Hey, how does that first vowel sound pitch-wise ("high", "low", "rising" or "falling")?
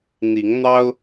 rising